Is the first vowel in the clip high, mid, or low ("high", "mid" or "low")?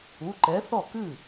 high